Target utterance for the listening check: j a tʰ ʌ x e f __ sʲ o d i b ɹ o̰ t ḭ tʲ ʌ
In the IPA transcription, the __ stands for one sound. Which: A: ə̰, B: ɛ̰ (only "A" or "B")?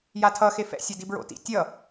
B